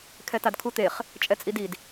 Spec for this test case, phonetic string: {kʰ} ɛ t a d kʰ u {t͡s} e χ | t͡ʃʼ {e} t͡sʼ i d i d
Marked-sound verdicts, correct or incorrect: correct, incorrect, incorrect

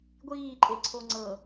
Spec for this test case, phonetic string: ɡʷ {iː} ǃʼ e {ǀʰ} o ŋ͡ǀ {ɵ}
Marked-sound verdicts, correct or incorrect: correct, correct, incorrect

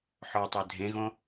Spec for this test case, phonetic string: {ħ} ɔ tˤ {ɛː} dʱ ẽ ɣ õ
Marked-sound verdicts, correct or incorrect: correct, incorrect

